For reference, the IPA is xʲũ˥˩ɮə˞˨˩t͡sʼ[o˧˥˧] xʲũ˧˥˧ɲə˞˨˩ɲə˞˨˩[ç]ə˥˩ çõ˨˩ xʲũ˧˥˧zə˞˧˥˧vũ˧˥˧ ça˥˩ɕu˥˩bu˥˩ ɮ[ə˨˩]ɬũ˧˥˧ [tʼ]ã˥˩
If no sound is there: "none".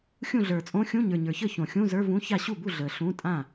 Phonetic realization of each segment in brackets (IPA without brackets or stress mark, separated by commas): õ˧˥˧, ç, ə˨˩, tʼ